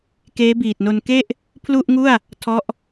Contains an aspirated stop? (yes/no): yes